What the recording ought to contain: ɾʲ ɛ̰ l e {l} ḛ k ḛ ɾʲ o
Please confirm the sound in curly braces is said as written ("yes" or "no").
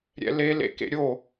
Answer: yes